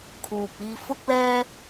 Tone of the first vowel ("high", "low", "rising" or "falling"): low